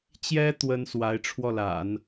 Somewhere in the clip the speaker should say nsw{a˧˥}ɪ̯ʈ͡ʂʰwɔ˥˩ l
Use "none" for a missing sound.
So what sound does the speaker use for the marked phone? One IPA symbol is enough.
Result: a˧˥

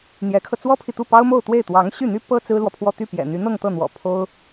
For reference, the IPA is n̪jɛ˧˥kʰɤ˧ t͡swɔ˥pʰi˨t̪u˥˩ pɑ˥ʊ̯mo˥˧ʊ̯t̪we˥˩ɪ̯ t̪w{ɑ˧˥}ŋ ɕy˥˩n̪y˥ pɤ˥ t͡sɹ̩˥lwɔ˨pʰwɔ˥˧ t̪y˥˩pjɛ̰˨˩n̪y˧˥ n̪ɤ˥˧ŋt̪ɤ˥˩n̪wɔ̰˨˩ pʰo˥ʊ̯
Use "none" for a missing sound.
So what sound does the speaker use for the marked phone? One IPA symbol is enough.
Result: ɑ˧˥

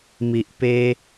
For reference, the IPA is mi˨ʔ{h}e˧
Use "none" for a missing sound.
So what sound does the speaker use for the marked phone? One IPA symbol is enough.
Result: p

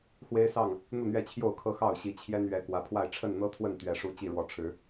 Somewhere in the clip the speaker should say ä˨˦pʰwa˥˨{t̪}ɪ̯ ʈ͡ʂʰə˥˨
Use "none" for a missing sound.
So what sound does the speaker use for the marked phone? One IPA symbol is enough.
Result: none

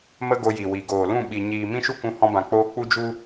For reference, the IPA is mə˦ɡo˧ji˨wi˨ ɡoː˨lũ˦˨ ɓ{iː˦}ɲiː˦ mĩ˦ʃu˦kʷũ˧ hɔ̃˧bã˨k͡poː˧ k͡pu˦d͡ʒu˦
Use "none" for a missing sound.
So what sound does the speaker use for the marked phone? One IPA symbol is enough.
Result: i˦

